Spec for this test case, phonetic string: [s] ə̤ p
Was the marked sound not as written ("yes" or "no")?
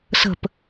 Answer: no